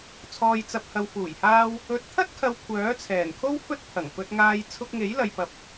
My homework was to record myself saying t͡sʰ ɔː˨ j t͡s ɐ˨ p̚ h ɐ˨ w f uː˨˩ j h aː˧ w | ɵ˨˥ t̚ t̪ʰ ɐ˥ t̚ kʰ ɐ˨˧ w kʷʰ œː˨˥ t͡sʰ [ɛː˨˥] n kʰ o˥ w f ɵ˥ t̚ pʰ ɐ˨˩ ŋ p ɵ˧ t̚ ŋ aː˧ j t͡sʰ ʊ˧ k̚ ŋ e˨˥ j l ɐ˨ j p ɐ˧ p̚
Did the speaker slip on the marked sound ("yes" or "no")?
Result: yes